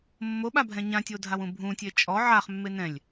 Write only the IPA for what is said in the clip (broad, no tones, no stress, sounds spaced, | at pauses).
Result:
mː o ɓ a bʱ ɛ̃ ɲ ã tʲ o dʱ a w ũ bʱ ũ tʲ e t͡ʃʼ ɔ ʕ a χ mː e n ɛ̃ lʲ